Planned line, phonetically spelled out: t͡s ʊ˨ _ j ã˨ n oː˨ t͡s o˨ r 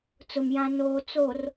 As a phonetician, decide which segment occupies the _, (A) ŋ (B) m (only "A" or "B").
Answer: B